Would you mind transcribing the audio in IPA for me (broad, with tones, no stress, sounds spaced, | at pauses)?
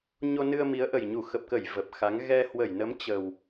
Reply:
ɲ o˧ n ɨ˧ ə̯ m i˨˦ ə̯ ʔ ə˨˩ j ɲ u˧˩ x ə˨˩ p̚ k ə˧˩ j v ə˨˩ p̚ x a˨˦ ŋ ɣ ɛ˧ h w ə˧˩ j n ə˨˦ m t͡ɕ ə˨˩ w